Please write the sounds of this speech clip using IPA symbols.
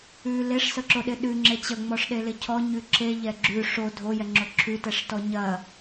ʉ leʂsəǁoɗɪ ɗʉŋ͡ǁe t͡ɕəŋ͡mɔʂɗelɪ cʰɔɲʉ ǁeʎɛ ɡ͡ǁʉ ʂo dʱojɛŋ͡ǁo ǁʰʉtɛʂtɔ ɲɐ

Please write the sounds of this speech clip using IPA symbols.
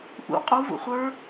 ʔṵ qʼu vṵχʷə˞

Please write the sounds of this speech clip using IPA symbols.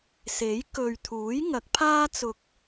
se˨˥j kɵ˨ɥt̪ʰuː˨˥jŋɐ˨˥k̚pʰaː˥ t͡sʊ˧k̚

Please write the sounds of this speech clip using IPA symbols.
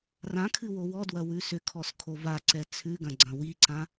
rãkʰɨ wowɔdwɐ wʉsʏkʰɔs kʰovaǀɛ t͡sʰʉɡɐ̃ ɡ͡ǀɐ̃wiǀã

